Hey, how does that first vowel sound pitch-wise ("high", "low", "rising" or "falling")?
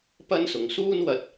high